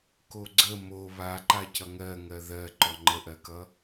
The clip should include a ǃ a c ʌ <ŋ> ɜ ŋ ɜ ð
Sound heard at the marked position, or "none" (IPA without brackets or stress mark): ŋ